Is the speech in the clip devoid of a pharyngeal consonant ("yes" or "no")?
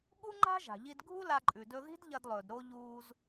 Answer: yes